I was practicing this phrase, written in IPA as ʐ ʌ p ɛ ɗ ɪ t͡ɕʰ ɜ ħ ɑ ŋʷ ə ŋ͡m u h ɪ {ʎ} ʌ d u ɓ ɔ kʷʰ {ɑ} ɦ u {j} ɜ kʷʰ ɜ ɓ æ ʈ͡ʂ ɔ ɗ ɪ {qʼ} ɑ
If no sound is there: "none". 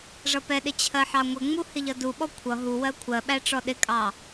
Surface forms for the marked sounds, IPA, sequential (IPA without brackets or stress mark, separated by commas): ʎ, ʌ, w, kʼ